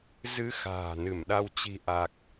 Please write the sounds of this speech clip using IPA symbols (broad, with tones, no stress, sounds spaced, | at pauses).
z ɨ˧ x a̤ː˨˩ n ɨ˧˩ m ɗ a˧ w t͡ɕ i̤˨˩ ʔ a˨˩ k̚